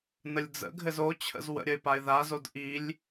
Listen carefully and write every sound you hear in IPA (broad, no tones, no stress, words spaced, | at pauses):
nəlʲd͡zə̰ɡʱɘz ot͡ɕʰə̰z wə̰ɾʲəɪ̯paɪ̯ ðazod ʔilʲ